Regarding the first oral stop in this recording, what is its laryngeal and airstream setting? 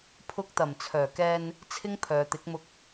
aspirated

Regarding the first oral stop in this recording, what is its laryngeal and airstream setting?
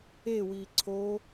click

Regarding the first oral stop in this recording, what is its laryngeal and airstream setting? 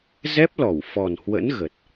plain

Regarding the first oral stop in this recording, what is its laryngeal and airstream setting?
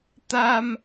plain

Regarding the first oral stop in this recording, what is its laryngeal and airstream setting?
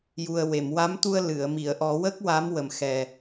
plain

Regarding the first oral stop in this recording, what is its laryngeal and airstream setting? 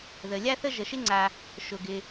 click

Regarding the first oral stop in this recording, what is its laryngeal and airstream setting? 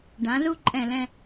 plain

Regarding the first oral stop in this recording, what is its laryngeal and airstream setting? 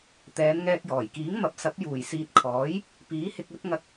plain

